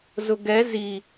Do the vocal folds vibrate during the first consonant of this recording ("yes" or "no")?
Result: yes